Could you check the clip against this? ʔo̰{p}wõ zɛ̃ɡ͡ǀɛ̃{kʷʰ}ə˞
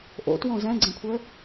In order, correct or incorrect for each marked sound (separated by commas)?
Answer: incorrect, correct